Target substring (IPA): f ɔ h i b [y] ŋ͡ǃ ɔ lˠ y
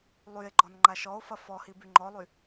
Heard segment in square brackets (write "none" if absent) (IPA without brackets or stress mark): y